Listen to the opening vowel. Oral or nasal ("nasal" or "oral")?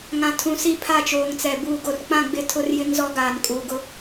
nasal